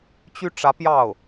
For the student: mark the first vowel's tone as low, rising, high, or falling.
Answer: high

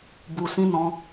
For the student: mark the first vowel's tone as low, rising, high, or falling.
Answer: low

